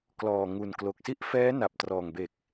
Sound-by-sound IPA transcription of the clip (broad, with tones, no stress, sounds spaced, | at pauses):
k l ɔː˨˩ ŋ u˨˩ n k l o˨˩ k̚ s i˦˥ ʔ f ɛː˦˥ n a˨˩ p̚ t r ɔː˨˩ ŋ b e˨˩ k̚